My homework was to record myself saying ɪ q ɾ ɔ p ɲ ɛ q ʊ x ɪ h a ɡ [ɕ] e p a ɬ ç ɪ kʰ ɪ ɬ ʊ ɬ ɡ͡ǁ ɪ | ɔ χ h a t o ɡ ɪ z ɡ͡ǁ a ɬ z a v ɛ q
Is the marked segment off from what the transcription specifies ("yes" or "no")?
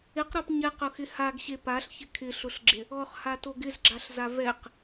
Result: no